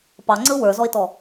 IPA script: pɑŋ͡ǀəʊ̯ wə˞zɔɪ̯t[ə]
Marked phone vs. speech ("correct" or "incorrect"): incorrect